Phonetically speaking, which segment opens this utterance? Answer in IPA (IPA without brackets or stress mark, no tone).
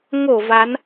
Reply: ŋ